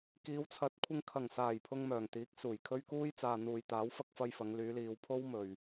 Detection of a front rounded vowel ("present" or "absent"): present